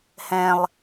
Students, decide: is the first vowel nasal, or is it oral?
nasal